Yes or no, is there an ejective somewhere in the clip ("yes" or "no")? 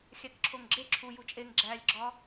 yes